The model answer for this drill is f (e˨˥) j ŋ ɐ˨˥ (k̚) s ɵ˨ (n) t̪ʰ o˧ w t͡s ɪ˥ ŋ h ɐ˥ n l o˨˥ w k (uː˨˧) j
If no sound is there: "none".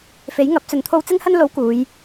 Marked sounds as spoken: e˨˥, p̚, n, uː˨˧

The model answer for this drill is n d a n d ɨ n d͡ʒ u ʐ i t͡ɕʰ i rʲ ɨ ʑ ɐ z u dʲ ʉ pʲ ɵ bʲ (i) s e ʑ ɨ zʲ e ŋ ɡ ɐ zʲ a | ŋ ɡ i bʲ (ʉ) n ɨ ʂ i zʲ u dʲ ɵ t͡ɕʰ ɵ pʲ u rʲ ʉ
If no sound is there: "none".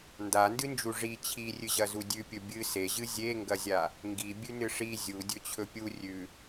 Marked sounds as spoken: ɨ, ʉ

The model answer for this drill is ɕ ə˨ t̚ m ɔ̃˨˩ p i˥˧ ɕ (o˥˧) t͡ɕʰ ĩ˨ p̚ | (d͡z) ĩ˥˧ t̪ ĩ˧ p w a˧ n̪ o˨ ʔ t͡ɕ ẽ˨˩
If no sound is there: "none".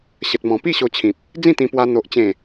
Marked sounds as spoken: o˧, d͡z

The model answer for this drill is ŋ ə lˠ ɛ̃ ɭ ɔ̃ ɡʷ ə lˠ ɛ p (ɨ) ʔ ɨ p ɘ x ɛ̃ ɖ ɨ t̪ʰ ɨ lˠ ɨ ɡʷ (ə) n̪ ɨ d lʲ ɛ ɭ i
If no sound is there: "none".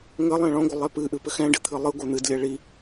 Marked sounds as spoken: ɨ, ə

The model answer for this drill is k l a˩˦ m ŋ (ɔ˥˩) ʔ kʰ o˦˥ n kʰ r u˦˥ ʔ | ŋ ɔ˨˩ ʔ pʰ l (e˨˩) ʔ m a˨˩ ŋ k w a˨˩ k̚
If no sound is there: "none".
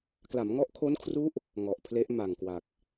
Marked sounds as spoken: ɔ˦˥, e˦˥

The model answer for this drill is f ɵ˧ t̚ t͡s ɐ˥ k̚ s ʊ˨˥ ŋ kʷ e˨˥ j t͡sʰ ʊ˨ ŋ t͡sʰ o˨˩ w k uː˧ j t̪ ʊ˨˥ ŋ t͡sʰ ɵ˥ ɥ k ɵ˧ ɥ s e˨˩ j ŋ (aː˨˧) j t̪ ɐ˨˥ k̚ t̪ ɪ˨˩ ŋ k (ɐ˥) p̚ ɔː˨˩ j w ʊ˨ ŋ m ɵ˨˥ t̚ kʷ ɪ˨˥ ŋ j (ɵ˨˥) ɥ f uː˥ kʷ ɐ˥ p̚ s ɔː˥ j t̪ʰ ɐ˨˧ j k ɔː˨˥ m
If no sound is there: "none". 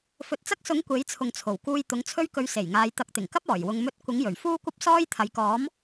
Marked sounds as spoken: aː˨˧, ɐ˥, ɵ˨˩

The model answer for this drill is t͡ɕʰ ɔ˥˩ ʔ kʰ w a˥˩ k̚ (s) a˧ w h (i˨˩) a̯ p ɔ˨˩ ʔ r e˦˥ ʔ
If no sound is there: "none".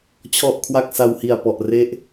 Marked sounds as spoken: s, i˨˩

